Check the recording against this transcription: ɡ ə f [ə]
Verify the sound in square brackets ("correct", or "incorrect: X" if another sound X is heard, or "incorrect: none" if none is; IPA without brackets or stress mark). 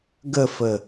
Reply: correct